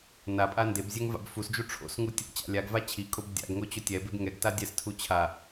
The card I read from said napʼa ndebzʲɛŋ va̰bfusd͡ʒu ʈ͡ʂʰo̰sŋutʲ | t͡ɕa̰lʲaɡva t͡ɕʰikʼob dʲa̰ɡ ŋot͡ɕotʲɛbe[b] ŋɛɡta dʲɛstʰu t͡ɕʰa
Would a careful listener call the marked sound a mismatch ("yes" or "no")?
no